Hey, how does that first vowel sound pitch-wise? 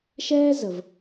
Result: high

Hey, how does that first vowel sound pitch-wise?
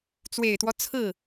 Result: low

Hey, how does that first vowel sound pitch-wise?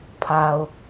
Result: low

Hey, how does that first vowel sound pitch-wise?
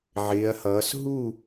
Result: rising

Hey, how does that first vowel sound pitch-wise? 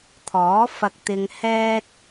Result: rising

